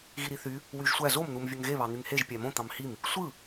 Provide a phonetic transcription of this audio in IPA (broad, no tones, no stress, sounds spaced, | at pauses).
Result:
ɣ i ɾ i θ y | w y ʒ sʷ æ z o m n̪ u m vʲ ø ŋ ɣ e β ɑ n̪ y ŋ h e ʒ pʲ æ m õ t̪ ɑ̃ m h i m | sʷ ɯ